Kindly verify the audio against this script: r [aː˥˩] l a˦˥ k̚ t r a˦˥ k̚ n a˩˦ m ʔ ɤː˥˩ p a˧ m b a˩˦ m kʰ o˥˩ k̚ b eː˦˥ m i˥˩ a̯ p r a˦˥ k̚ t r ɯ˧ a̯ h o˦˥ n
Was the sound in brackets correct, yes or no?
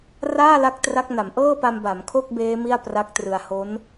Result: yes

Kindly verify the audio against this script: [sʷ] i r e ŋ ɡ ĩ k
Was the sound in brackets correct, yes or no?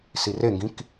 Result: no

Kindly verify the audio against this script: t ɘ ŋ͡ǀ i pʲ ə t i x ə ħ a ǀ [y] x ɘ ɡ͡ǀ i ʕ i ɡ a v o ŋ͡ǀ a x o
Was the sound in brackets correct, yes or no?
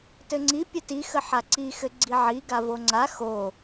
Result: no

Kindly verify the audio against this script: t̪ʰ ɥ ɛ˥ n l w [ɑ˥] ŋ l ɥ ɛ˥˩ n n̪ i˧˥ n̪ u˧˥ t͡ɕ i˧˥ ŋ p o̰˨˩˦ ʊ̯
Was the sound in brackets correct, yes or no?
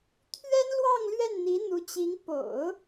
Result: no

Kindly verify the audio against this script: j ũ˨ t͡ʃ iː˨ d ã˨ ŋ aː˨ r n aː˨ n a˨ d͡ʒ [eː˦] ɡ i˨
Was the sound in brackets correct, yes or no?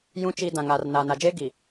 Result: yes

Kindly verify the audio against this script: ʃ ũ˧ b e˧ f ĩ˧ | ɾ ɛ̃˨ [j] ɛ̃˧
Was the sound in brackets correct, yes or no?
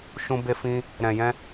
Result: yes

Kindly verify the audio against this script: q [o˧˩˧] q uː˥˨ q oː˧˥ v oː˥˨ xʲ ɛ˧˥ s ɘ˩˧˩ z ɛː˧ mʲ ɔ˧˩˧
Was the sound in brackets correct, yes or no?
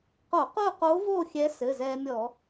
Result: yes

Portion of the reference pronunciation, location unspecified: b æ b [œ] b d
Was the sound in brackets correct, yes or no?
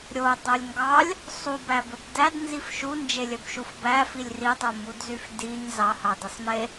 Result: no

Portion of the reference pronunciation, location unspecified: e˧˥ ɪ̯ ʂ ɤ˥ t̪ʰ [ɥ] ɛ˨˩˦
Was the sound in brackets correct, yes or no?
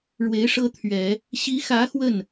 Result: yes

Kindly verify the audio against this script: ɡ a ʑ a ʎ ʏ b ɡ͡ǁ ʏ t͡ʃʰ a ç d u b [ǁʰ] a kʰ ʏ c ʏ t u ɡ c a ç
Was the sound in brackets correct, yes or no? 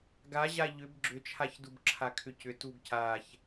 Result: yes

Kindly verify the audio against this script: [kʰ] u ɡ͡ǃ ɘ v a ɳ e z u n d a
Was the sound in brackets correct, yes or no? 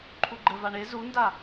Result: no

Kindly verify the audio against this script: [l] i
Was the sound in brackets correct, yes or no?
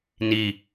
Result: no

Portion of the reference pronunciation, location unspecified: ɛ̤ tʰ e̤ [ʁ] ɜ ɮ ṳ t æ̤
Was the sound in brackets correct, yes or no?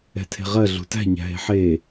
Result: yes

